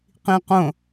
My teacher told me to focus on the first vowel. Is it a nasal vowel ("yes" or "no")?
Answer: yes